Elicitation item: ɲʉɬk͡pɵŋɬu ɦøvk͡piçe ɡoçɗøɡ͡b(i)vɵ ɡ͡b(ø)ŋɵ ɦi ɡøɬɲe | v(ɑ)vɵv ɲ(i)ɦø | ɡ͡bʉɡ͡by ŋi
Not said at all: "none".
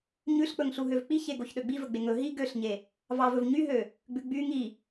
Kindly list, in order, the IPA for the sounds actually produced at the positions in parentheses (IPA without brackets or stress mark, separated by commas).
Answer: i, e, ɑ, y